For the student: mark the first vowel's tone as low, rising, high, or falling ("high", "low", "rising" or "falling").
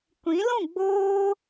rising